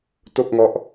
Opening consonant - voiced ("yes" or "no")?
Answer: no